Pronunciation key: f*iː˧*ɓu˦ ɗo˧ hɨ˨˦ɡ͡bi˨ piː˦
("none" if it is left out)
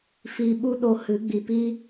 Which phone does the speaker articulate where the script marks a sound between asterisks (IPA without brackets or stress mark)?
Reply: iː˧